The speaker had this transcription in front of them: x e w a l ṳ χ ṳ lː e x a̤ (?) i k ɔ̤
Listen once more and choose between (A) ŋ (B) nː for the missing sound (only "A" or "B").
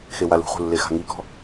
A